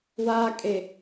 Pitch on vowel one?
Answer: low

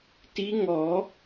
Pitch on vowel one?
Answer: rising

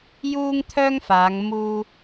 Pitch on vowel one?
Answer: high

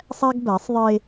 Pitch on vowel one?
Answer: high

